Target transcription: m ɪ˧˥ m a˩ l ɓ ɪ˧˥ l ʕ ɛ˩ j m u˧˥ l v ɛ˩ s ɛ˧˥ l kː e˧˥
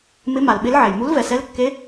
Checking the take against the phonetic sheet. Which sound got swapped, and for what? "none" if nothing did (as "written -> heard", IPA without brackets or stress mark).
none